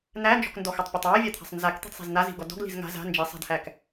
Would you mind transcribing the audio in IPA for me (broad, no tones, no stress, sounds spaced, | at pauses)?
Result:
n̪ æ n d͡ʒ ɔ̤ k n d ɔ x a tˤ pʲ ɔ tˤ w æ vʲ a t̪ʰ a̤ sˤ n z a k t̪ i̤ d sˤ e̤ z n̪ a z i̤ ɡ ɔ d ɔ̤ ɡ l i̤ z ŋ a̤ z a̤ n d͡ʒ i sˤ a̤ d h æ k